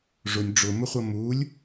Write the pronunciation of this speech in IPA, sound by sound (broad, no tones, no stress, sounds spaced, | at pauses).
ʐ ʊ nʲ ɖ͡ʐ ʊ m ʊ χʷ ʌ m u lʲ